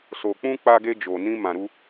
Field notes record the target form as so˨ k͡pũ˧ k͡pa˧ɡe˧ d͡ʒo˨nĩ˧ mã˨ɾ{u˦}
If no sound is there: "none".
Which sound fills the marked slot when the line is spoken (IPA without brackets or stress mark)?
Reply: u˧